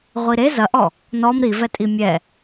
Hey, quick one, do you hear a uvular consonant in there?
yes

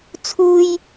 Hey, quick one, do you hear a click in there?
no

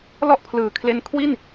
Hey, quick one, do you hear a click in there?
no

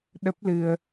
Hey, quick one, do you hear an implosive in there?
yes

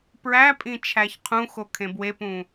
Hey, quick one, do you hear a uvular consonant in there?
yes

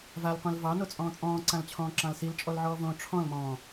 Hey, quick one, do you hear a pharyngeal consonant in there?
yes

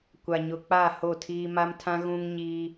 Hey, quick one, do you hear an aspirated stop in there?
yes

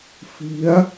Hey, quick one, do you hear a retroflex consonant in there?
no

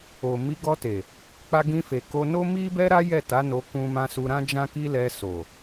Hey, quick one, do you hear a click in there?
no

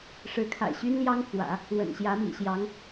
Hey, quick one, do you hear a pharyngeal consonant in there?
no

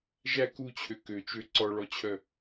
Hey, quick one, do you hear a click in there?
yes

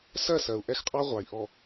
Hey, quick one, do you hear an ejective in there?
yes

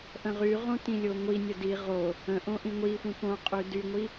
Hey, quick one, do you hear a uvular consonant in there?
yes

